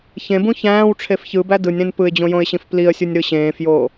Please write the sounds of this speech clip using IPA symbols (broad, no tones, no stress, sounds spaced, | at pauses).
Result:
ç ẽ b ũ ç æ̃ː w ʈ͡ʂʰ e f ç ɯ b æ d ɯ nʲ ɾ ẽ n p ɯ ɪ̯ d͡ʑ õ j õ ɪ̯ ɕ ĩ f p l i ə̯ sʲ u nʲ ɾ ɯ ɕ ẽː f j o